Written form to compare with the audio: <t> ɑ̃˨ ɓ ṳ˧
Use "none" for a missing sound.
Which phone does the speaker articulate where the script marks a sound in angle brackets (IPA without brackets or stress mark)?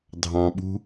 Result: dʱ